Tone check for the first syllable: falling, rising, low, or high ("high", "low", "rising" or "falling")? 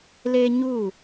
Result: high